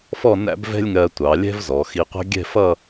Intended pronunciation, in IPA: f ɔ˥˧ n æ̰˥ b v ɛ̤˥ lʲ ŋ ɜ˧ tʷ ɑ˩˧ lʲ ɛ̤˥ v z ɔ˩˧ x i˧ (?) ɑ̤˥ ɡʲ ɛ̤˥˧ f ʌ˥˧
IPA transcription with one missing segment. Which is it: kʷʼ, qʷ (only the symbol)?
qʷ